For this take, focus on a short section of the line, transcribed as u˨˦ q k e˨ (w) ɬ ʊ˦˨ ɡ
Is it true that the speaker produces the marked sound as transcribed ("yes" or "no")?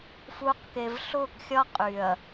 no